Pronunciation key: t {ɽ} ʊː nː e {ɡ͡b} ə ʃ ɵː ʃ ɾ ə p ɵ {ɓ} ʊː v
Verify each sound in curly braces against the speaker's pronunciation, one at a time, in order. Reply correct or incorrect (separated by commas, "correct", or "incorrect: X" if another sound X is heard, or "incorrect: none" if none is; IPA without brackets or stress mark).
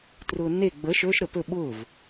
incorrect: r, correct, correct